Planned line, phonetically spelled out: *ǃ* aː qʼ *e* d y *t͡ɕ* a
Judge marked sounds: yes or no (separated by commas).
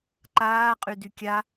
yes, no, no